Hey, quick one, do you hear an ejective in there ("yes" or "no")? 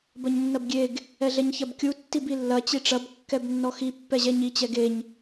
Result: no